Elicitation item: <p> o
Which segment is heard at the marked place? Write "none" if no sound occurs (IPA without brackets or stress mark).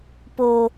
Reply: p